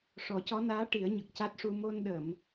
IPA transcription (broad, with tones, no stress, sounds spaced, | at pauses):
ʂ ɔ˨˩˦ c ɔ˧˥ n aː˧˥ ʈ i˨˩˦ ə̯ ɲ ə˨˩ k̚ c a˦˥ t̚ ʂ u˧ m o˧ n ɗ ə˨˩˨ m